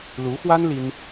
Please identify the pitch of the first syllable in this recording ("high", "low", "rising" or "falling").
rising